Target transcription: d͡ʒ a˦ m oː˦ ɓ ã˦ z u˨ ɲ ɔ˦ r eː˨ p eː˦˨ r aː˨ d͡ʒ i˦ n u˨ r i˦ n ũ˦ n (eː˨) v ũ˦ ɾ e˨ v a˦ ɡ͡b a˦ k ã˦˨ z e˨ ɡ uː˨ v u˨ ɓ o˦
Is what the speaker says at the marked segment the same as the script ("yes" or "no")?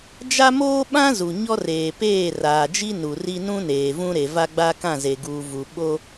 yes